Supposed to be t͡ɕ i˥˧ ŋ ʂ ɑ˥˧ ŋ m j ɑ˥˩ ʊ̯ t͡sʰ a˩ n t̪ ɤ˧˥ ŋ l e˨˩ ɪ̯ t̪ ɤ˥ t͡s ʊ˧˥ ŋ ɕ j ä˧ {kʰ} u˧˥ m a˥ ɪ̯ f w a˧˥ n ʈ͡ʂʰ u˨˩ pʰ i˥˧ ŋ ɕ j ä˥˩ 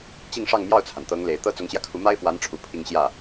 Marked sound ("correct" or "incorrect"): correct